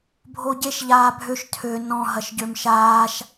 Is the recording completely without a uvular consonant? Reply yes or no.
yes